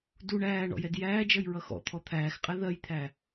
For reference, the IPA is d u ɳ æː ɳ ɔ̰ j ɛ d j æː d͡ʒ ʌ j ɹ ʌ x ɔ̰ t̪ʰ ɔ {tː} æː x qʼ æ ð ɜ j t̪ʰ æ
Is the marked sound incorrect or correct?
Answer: incorrect